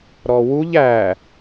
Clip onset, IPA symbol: ɾ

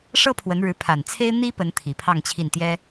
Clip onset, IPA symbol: ʂ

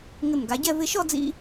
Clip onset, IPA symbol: ŋ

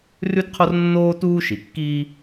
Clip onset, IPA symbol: r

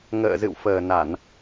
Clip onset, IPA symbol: ŋ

